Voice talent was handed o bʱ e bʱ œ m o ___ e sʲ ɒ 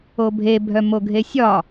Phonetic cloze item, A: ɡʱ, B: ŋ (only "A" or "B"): A